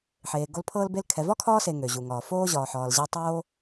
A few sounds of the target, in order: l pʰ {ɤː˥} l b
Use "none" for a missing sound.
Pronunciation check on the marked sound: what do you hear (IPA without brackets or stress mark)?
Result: ɤː˥